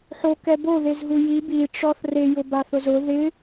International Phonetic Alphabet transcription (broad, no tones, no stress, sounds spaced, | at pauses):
ħ o k ɛ b o ð e z ɦ u j i b i ʈ͡ʂ ɔ θ r e j ʊ b a θ ʊ z ʊ ð ɪ